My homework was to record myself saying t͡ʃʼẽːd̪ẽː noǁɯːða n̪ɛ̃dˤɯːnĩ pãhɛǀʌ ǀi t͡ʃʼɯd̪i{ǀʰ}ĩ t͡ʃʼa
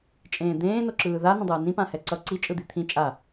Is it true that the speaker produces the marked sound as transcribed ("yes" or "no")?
no